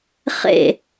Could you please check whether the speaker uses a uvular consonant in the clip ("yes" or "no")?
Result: yes